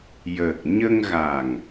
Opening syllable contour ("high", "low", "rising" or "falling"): low